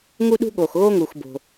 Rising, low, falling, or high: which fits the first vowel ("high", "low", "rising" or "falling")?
high